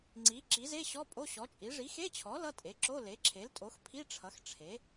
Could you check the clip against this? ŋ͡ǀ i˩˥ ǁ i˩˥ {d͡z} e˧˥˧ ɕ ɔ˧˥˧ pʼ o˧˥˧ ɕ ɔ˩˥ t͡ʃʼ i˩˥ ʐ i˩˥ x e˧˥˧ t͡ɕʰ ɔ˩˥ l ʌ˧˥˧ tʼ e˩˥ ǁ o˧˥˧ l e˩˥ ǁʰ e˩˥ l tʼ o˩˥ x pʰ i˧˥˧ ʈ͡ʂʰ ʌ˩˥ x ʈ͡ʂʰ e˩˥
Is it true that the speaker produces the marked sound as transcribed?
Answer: no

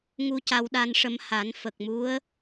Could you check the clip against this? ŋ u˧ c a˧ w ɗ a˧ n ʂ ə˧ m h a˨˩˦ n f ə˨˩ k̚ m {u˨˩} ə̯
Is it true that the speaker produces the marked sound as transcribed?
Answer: no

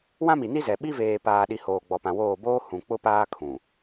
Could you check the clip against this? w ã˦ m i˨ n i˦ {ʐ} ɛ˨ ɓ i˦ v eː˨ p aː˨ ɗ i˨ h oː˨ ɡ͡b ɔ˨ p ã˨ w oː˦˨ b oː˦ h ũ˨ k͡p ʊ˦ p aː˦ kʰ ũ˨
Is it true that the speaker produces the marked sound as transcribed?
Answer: no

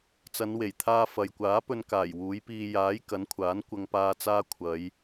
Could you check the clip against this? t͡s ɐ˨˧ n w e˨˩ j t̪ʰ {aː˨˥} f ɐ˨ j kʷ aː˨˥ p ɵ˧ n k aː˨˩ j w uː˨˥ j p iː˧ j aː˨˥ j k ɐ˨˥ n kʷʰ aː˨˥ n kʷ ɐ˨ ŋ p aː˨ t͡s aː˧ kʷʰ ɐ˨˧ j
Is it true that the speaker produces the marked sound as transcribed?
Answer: no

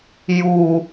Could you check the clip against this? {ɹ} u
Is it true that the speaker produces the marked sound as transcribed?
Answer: no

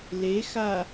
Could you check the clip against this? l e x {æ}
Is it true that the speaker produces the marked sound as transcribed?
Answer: no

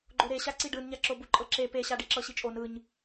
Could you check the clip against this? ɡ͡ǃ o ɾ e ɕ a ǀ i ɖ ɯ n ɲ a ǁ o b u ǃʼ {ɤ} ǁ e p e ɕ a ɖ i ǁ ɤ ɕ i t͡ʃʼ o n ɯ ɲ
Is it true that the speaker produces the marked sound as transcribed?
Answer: yes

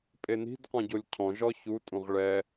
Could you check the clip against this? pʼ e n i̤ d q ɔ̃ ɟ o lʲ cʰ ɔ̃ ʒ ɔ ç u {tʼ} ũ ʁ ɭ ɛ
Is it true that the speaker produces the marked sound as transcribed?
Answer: yes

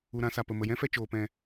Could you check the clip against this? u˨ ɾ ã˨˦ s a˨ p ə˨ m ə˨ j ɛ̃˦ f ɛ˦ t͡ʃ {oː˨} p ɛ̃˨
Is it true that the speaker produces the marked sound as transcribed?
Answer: yes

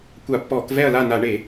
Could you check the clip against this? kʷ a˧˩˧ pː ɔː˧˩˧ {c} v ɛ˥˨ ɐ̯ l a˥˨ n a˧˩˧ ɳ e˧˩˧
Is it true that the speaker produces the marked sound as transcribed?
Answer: no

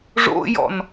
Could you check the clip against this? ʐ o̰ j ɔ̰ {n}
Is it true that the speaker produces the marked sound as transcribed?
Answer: yes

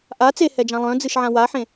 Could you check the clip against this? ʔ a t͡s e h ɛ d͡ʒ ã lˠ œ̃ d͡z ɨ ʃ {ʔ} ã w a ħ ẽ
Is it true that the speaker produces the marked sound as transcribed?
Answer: no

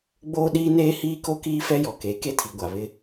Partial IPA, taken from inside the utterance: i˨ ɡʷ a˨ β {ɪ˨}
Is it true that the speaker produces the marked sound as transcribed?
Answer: no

